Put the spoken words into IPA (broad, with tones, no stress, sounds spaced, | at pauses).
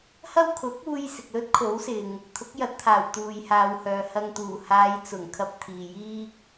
h ɐ˥ w kʰ ʊ˨˥ k̚ uː˧ j s ɪ˨ k̚ l ɵ˥ t̚ kʰ o˨˥ w s ɪ˨ ŋ | t̪ʰ ʊ˨˥ k̚ j ɐ˨˥ t̚ t̪ʰ aː˨˩ w t̪ uː˨ j h aː˨ w h œː˨ h ɐ˨ ŋ t̪ uː˨˩ h aː˨˧ j t͡s ʊ˨˩ ŋ kʰ ɐ˧ p̚ t̪ʰ iː˨ j iː˥ k̚